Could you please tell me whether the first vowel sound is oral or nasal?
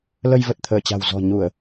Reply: oral